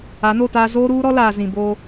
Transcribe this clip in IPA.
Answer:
a˨˦ n o˦˨ t aː˦ z oː˦ ɾ uː˦ ɾ ɔ˦ l aː˨ z ĩ˨ b o˦

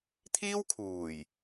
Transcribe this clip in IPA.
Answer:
t̪ʰ iː˥ w kʰ uː˨˩ j

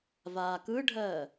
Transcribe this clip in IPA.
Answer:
v aː k ɯ ɖʱ ɜː

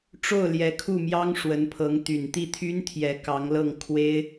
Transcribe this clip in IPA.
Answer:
ʈ͡ʂ o˥˩ ʊ̯ l j ɛ˧˥ kʰ u˥˩ m j ɑ˥ ŋ ʂ w ə˧˥ n pʰ ɤ˧˥ ŋ t̪ y˨˩ n t̪ i˥˩ t̪ʰ y˥ n t̪ʰ j ɛ˧˥ k ɑ˧˥ ŋ l ɤ˥˩ ŋ kʰ w e˥ ɪ̯

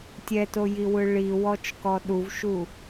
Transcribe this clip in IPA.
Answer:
tʲ ɛ t o j i w ɯ ɭ i w ɔ t͡ʃ k ɔ ɗ u v ʃ u

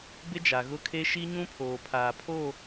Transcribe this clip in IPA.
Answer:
b ɪ˦ d͡ʒ a˨ ɣ ʊ˦ kʰ e˦ ʃ i˦ ɲ ũ˦ pʰ oː˨ pʰ aː˨ pʰ o˦˨

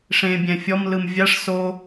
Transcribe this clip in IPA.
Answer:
ʂ ẽ bʲ ɛ̃ fʲ ɔ m l ɯ m vʲ a ʂ s o

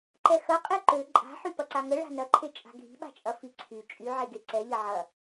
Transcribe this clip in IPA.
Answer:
ǃ ɛ x ɐ qʼ e ǃ ø ǃʼ a̤ ħ y p ɐ ǀ a ŋ ə ɭ a̤ n ɐ ǃʰ e t͡ʃʼ a̤ ɡʱ i̤ ɓ a̤ t͡ʃʼ ɐ f i ǀʰ y t͡ʃʼ y ʕ e ɡ e ǀ ɛ ʎ ɐ ʕ ɐ

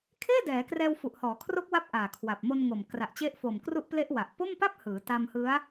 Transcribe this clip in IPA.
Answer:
kʰ eː˥˩ d ɛː˩˦ k r ɛː˧ w f u˨˩ ʔ h ɔː˩˦ kʰ r o˦˥ k̚ w a˦˥ p̚ ʔ aː˨˩ kʰ w a˨˩ p̚ m o˧ n ŋ o˨˩ m k r a˨˩ ʔ t͡ɕ e˦˥ ʔ f o˨˩ m k r u˦˥ ʔ p l e˦˥ ʔ w a˨˩ ʔ p o˥˩ m p a˥˩ p̚ h ɯː˩˦ t a˧ m h ɯ˦˥ a̯

